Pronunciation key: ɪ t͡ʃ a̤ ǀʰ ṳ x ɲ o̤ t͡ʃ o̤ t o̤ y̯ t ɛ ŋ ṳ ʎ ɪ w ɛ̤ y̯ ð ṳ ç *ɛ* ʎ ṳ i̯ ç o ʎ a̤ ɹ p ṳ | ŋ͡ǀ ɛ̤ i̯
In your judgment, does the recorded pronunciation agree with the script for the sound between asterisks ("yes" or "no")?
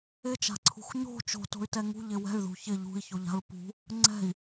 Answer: no